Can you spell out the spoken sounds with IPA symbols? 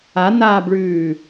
a n aː b ɭ ʉː

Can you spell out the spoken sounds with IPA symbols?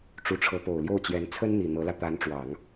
ʈ͡ʂ u˧˥ ʈ͡ʂʰ ɤ˧˥ p o˨˩ ʊ̯ l j o˥˩ ʊ̯ t͡ɕ j ɛ˧˥ n t͡sʰ ə˥ n n̪ i˨˩ n̪ ɤ˧˥ l ä˧ t̪ a˧˥ n ʈ͡ʂ w ɑ˨˩˦ ŋ

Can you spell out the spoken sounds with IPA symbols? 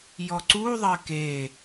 j ɔ ǀ u ðˤ ɜ k e

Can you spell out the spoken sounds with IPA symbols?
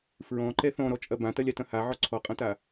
f ɹ ɔ̃ ǃ ɛ θ ɔ̃ ɾ ɔ t͡ʃʼ ɐ b ã t ɐ lʲ a t ɐ̃ h a ʕ ɔ ǀʰ ɔ qʼ ɐ̃ t a

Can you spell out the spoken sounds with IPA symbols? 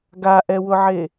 ɡ a ʔ ɛ w ʊ ʕ e

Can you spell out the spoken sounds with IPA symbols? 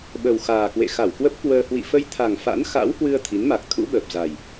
ɓ ə˨˩ w x aː˨˩ k w ḛ˧˨ x a˧˩ w k w ə˦˥ p̚ k w əː˧ h w ḭ˧˨ f ə˧ j t̪ʰ a˨˩ ŋ f a̰˧˥ n x a̰˧˥ w h w ɨ˧ ə̯ t̪ʰ i˨˦ n m a˨˩ k̚ t̪ʰ ṵ˧˥ ɓ əː˨˩ p̚ z a˨˩ j

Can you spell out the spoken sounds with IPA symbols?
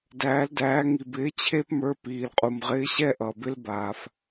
d æː˩˧ l d æː˩˧ ŋ i˩ b ɪː˨˥ t͡ɕʰ e˦ p m ə˞˨˥ p iː˩ l qʼ u˩ m ʁ ɪː˨˥ ɕ ɛ˦ ʔ ʌ˩ b ɪ˦ l b aː˩ f

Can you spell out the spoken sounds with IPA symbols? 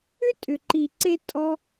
ʏ˦ tʼ ʏ˨ ǃ i˨ ǀ e˧ tʼ ɔ˦

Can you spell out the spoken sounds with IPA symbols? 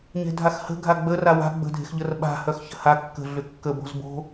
ɲ e̤ dʱ a x h ə̤ ɡʱ a ɡ͡b ə r a w a̤ ɡ͡b ə̤ dʱ e̤ x ʎ ə r ɓ a̤ h œ x ç ə̤ h a kː ə̤ ɮ ʏ kː ə b o̤ z b o̤

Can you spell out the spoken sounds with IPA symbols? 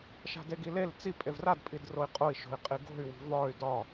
ʃ a̤ d e ɡ i l e l t͡s i pʼ e v r a d pʼ i d r o i̯ qʼ o i̯ ʃ o̤ i̯ qʼ i ɡ o̤ y̯ w i̤ v ɒ y̯ d ɒ

